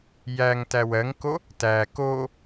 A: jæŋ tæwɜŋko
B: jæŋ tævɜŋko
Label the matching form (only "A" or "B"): A